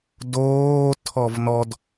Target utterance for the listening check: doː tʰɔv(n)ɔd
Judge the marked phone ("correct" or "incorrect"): correct